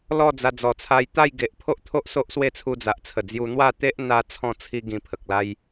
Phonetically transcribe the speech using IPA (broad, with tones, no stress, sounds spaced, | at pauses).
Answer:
l ɔ˥˧ d͡z a˧ d͡z ɔ˨˩ t͡sʰ a˧ j t̪ a˥˧ j ɡ e˨ ʔ pʰ o˦ ʔ t̪ʰ o˦ ʔ s o˦ ʔ s w e˥˧ t͡sʰ u˧ d͡z a˨ ʔ t͡sʰ ə˨˩ d͡z j u˧ n̪ w a˥˧ t̪ e˦ ʔ n̪ a˦ t͡sʰ ɔ̃˥˧ t͡sʰ i˦ ɡ ĩ˧ pʰ ə˨ k̚ l a˦ j